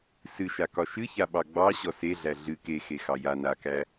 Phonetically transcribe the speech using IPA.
s ɨ ʃ a k ɒ ʃ ɨ ç a ɓ ɑ ɡ͡b ɑ ɕ ɔ s e ɮ æ ɮ ɨ k e x e x ɑ j a n a k æ

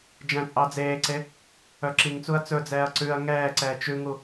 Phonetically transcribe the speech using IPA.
d͡ʒ æ̃ t͡sʼ ɑ d͡z eː ǀ e | œ ǁ i ŋ t͡s u ɐ̯ t͡s ɵ d͡z ɛː ɐ̯ ǀ ʉ ɐ̯ ŋ ɛː ǀ ɛː t͡ʃ ʉ ŋ u

